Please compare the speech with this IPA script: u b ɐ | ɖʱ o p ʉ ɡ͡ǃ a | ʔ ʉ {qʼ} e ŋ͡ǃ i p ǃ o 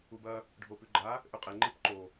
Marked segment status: correct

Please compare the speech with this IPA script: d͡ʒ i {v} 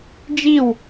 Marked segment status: incorrect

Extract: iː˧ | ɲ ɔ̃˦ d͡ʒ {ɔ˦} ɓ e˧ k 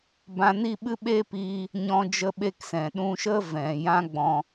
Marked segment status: incorrect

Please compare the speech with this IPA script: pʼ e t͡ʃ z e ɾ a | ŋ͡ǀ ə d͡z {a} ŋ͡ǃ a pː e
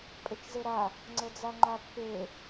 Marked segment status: correct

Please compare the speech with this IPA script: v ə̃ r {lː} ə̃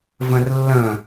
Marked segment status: correct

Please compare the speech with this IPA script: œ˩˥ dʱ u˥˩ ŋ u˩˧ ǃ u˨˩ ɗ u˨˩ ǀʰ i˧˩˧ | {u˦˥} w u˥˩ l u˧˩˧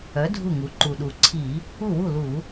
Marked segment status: incorrect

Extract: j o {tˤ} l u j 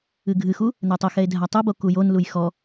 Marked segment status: incorrect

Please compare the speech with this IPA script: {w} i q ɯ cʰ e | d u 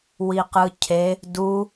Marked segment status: correct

